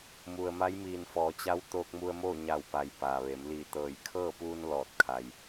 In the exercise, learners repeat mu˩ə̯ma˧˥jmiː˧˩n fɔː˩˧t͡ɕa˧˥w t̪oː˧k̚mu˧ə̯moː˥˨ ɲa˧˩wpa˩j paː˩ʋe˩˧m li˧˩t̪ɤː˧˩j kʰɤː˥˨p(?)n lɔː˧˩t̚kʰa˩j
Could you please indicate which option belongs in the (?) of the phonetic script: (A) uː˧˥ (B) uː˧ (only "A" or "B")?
B